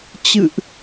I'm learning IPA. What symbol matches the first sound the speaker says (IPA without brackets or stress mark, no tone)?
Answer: t͡ɕ